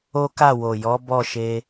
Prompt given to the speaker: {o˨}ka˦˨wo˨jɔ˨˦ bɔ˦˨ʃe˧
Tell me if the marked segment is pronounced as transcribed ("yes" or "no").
no